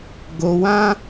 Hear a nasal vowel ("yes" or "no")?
yes